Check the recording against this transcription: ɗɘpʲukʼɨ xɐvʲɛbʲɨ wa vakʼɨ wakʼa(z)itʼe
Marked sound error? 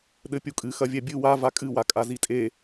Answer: no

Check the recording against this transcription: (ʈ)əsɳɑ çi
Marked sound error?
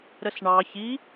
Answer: yes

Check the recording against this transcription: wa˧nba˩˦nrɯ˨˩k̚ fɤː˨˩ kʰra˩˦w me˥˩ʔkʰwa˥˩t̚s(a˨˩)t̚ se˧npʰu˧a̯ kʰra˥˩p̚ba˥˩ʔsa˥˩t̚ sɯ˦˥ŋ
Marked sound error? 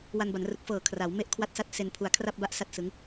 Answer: yes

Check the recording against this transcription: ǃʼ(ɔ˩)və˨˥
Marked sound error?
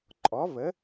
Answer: yes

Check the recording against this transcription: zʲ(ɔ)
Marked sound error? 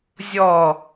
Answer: no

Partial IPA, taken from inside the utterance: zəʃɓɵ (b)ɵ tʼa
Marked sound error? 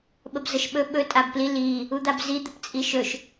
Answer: yes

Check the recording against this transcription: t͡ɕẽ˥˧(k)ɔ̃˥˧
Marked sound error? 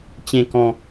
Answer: no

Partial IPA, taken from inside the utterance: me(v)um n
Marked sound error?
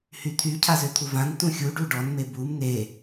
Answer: yes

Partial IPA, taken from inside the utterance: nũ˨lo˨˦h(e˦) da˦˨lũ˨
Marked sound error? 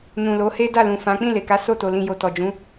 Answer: no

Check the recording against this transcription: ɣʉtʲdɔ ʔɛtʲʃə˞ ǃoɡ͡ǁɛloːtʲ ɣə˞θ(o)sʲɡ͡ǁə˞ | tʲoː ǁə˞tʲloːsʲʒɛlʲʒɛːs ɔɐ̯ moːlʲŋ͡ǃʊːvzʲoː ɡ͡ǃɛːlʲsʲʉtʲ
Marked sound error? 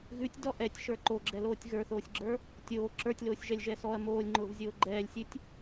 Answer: yes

